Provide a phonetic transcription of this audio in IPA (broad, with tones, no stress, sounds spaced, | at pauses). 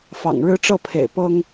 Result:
f ɑ̰˨˩ ŋ ɻ ɻ̩˦ ʈ͡ʂ ɤ˥˨ pʰ ḛ˨˩ ɪ̯ p ɤ˦ ŋ